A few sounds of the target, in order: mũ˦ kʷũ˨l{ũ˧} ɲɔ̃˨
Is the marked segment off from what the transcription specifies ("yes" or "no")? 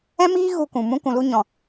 yes